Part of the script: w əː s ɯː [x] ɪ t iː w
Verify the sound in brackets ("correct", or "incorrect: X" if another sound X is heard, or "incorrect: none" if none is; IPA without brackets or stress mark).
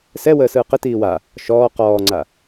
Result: incorrect: q